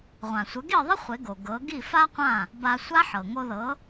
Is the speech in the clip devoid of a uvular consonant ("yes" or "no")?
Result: no